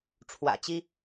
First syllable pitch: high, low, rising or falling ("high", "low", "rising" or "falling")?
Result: low